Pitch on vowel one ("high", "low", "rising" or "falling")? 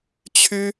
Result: high